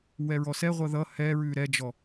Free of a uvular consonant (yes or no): no